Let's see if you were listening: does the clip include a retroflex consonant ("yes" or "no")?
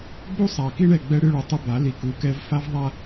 yes